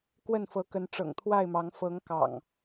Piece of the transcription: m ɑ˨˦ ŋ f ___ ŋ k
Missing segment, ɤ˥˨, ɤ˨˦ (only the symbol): ɤ˨˦